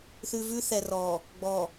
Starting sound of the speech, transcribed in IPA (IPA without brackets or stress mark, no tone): θ